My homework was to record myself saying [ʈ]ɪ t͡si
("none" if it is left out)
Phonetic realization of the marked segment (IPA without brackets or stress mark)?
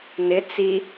n